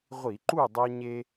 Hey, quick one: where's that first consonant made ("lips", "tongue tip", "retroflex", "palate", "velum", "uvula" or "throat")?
uvula